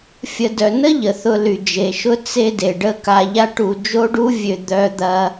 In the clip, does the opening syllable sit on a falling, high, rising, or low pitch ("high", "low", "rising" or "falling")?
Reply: low